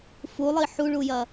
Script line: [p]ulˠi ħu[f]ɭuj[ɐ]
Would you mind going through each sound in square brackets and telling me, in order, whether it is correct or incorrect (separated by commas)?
incorrect, incorrect, correct